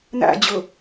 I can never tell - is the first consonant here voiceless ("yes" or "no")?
no